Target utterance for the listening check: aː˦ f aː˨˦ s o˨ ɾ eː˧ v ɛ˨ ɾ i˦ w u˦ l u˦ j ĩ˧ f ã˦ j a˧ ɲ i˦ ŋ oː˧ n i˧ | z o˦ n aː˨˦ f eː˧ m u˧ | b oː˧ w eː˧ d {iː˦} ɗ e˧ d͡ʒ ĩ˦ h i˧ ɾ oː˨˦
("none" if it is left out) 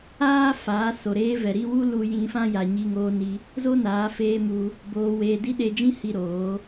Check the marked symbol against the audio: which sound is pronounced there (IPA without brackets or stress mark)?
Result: i˦